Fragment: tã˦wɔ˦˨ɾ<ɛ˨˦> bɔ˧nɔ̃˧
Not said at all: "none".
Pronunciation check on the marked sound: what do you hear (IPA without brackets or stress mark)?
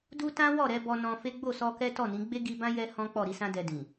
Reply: ɛ˨˦